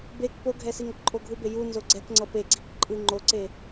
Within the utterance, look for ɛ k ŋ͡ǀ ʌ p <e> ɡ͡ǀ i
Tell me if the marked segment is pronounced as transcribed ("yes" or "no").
yes